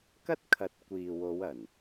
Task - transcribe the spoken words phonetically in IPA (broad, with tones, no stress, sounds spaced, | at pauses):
k ɐ˥ t̚ kʰ ɐ˨˥ t̚ kʷ iː˨ w o˨˧ w ɐ˨˩ n